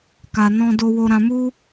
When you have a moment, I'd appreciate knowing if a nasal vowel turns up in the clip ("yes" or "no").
yes